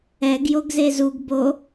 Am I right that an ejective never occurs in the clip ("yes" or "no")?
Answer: yes